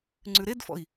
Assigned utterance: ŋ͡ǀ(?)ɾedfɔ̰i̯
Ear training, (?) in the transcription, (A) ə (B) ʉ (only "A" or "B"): B